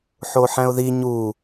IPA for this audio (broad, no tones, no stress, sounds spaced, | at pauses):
ħ o ħ æ̃ ʊ̯ ð i ɲ u